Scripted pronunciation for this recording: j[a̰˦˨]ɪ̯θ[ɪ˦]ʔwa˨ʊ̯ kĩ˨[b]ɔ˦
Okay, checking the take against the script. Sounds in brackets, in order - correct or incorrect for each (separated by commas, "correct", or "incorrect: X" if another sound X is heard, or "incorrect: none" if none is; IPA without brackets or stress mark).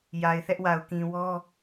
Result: incorrect: a˨, incorrect: ɛ˦, incorrect: w